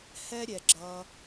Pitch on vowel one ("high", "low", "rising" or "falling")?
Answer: high